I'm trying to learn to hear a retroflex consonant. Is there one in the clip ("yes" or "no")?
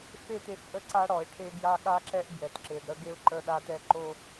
yes